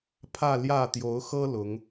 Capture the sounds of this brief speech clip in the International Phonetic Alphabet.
pʰ ä˥˧ l j ä˥˩ t̪ j o˧˥ ʊ̯ x ɤ˥ l ʊ˧˥ ŋ

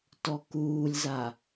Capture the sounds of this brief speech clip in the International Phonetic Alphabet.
t ɔ k uː lʲ z a

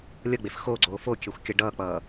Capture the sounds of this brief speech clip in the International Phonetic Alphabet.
lʲ ʌ ɡ͡b e f x o ɡ͡ǀ oː f o kʲ ɛ xʷ kʲ ʌ ɖ ʌː k͡p ʌː

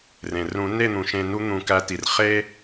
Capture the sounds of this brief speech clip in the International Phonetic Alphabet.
r ẽ˩ r ũ˨˩˦ n e˥˨ n̪ ũ˩ ʃ ẽ˨˩˦ n u˨˥ n̪ ũ˨˩˦ k æ˨˥ t i˩ r χ e˥

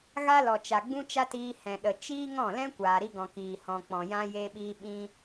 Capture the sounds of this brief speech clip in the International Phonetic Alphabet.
ɣ a˦ l ɔ˨ t͡ʃ a˨ ɡ͡b ũ˦ t͡ʃ a˦ t iː˧ h ɛ̃˨ ɗ ə˨ t͡ʃ iː˦ ŋ ɔ̃˦˨ l ɛ̃˦ kʷ aː˨ ɾ i˧ ɡ ɔ̃˨ k iː˨ h ɔ̃˨ k͡p ɔ̃˨ j ã˦ j e˦ ɓ iː˦ ɓ ĩ˦

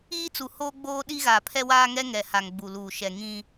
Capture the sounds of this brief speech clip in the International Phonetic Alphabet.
iː˦ t͡s u˨ h oː˦ ɡ͡b oː˦ ɗ i˦ ɣ a˨ pʰ ɛ˦ w aː˦ ŋ ɛ˦ ŋ ɛ˨ h a˨ ŋ ɡ͡b u˨ l uː˨ ʃ ɛ˨ ŋ ĩ˦

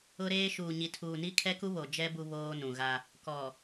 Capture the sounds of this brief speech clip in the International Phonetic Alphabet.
ʊ˦ ɾ eː˦ ʃ uː˨ ɲ i˨ tʰ uː˨ n i˦ kʰ ɛ˦ k u˦ β o˨ d͡ʒ ɛ˦ b u˦ β oː˦ n ũ˨ ɣ a˦ | k ɔ˨

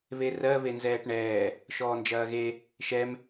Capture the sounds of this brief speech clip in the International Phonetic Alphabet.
β e r ɜ β e n z ɛː ʈ ɳ ɛː | ʃ ɔː n d͡ʒ ɐː ɣ e | ʃ ɛ m

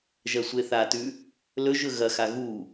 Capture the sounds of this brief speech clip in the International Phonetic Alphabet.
ʒ ɐ sʷ e θ a t ʉ | l ɵ ʒ ɵ ɣ ɐ x a ɣ u

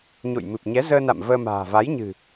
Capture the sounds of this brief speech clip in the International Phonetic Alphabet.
ɲ o̰˧˨ j m ɨ˨˩ p̚ ɲ ɛ˨˦ z əː˧ n a̰˧˨ m v əː˧ m a̤ː˨˩ v a˨˦ j ɲ ɨ̤˨˩

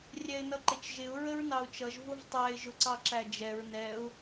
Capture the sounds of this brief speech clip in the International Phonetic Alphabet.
rʲ ɛ ɪ̯ n ʌ ǃ ɪ t͡ʃ ʒ ɪ ʊ̯ ɹ ə ɹ n ɑ ʊ̯ t͡ʃ ʌ ʒ v ʊ v tˤ æ ɪ̯ ʒ ʊ ǀ ɑ ǁ æ d͡ʒ ɛ ɹ n ɛ ʊ̯

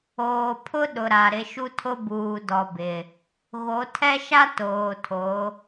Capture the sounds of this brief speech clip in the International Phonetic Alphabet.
oː˨ pʰ ʊ˦ ɗ ʊ˨ ɾ a˨ ɾ ɪ˨˦ ʃ u˦ tʰ ʊ˦ b uː˨ d ɔ˨ b ɪ˨ | ɣ o˨˦ tʰ ɛ˦ ʃ a˦ t oː˨ tʰ o˨˦

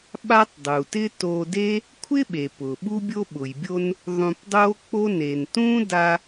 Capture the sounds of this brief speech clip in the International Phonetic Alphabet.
ɓ a˥ tˤ dˤ u˩ t ɪ˥ t o˧ d e˥ | kʷʰ ɪ˥ ɓ e˩ p ʊ˩ ɓ u˥ bʲ o˥ ɓ ʊ˩ j bʲ o˧ n | ðˤ ũ˧ p dˤ o˥ k͡p o˥ n e˩ n t ũ˥ d a˧

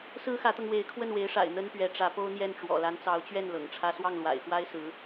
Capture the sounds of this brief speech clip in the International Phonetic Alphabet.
s ɹ̩˥ x ä˧˥ t̪ ɤ˧ ŋ w e˧˥ ɪ̯ kʰ w ə˥˩ n w e˧˥ ɪ̯ ʂ a̰˨˩ ɪ̯ n̪ ə˥ n p ɥ ɛ˧˥ ʈ͡ʂ ä˧˥ p o˥ ʊ̯ n̪ j ɛ˥˩ n ʈ͡ʂ w ɔ̰˨˩ l a˧˥ n t͡s ɑ˧˥ ʊ̯ t͡ɕ ɥ ɛ˥˩ n l ɤ̰˨˩ ŋ ʈ͡ʂʰ ä˥ s w ɑ˥˩ ŋ l w a̰˨˩ ɪ̯ x w a˥ ɪ̯ s ɹ̩˧˥

